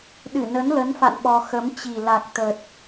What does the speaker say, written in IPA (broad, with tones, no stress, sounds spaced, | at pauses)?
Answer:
ɗ ɨ˧˩ n ə˨˦ n l ə˨˦ n f a̰˧˨ n ɓ ɔ˧ x ə˨˦ m t͡ɕ i˨˩ l a˨˩ k̚ t̪ əː˨˩ t̚